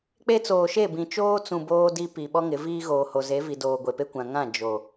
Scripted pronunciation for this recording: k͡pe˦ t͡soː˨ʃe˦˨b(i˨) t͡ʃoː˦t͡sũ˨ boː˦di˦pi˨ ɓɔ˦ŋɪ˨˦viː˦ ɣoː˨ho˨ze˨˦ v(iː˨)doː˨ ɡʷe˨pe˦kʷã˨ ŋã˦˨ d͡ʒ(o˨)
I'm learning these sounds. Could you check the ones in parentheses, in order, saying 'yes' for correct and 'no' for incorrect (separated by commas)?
no, no, yes